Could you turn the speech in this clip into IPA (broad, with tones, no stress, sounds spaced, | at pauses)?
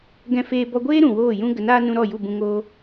ɡ ɛ̃˧ f eː˧ b ɔ˧ ɡʷ eː˦ ɾ ũ˨ w oː˦˨ j ũ˦ ɡ ə˨˦ n aː˦ n ũ˧ ɾ ɔ˦˨ j u˦˨ b ũ˧ ŋ oː˧